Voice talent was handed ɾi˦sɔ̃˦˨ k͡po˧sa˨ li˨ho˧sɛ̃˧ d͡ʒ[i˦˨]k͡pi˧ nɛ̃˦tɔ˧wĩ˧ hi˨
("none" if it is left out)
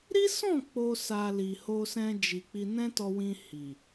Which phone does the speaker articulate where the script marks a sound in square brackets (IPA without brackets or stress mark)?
i˨